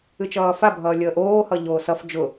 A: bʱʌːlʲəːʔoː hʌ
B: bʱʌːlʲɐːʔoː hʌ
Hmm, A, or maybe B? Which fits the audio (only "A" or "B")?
A